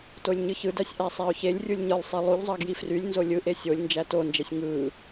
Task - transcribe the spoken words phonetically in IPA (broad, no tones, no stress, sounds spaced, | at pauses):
t o lʲ ɲ ɯ ç ɯ d æ sʲ ʔ æ sˤ æ ʊ̯ ç e lʲ rʲ u lʲ ɲ ɯ lˠ sˤ e lˠ u ʎ zˤ ɑ ɡ j i f r y lʲ n z o lʲ ɯ ʔ e sʲ o lʲ n d͡ʒ æ t o n d͡ʒ e sʲ ŋ ɯ